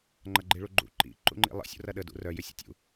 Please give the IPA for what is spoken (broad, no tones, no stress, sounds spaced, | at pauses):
ŋ͡ǃ ɐ ɡ͡ǃ i ɭ u ɡ͡ǃ ṵ ǃ ḭ ǃ ṵ ŋ͡ǃ ḭ lˠ ə̰ sʲ ṵ r ɐ ɗ ə d ṵ r œ j ʏ sʲ ə̰ tʲ ṵ